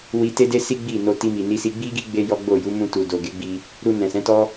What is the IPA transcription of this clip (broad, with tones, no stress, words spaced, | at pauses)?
wi˧te˦de˦si˦ ɡ͡bi˦˨ no˧ ti˧mi˨ni˧si˧ ɡ͡bi˦ɡi˦ ɡ͡be˦jɔ˦ɡ͡bo˦˨ ju˨˦mũ˧tu˨ do˨ɡe˨˦ɡ͡bi˧ | ɾu˧nɛ̃˨sɛ̃˨˦tɔ˦